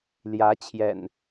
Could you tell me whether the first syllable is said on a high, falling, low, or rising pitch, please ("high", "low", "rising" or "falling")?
rising